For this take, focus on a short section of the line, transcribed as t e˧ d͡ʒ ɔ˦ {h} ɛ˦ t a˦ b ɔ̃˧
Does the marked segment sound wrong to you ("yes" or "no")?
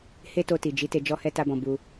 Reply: no